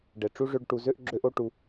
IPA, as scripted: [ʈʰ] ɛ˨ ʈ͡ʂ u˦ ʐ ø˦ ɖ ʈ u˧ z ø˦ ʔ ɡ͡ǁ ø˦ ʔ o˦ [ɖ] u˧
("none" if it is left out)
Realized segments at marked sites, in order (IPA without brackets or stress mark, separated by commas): ɖ, ʈ